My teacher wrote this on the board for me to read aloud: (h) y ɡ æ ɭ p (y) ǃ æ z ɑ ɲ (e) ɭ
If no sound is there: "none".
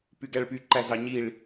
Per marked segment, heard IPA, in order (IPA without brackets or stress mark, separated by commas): p, y, i